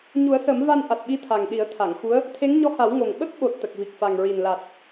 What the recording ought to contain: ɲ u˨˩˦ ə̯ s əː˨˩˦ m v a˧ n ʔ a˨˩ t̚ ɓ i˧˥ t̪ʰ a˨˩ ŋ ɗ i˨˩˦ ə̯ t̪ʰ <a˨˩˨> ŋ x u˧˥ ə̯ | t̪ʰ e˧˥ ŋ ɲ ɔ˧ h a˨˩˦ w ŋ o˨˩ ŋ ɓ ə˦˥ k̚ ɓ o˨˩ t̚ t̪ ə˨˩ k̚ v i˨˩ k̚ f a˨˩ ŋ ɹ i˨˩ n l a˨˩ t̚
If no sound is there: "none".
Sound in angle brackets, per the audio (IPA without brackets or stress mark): a˨˩˨